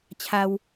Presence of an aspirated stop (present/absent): present